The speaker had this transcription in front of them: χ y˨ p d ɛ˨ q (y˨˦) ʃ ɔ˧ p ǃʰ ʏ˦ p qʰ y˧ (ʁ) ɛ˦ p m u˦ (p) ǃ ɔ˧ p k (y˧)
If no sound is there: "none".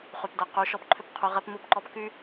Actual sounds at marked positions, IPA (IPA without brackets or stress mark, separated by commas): y˨˦, ʁ, p, y˦